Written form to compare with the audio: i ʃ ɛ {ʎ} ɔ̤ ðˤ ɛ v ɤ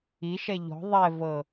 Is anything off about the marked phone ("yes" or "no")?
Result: no